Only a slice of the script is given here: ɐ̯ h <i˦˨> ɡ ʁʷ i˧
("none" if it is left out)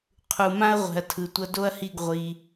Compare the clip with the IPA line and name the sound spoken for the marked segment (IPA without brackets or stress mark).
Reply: i˦˨